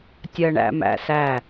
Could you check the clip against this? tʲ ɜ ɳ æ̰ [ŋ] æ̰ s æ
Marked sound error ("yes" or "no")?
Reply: yes